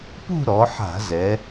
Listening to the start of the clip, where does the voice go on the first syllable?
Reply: falling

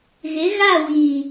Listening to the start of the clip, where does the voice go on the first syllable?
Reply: rising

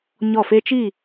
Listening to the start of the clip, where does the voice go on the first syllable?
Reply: falling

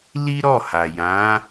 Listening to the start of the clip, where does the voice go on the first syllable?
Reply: high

